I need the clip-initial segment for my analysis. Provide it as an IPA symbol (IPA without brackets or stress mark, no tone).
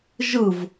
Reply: ʒ